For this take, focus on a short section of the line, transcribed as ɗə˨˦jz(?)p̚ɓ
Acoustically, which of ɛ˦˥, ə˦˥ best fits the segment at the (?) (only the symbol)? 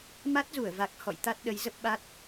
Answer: ə˦˥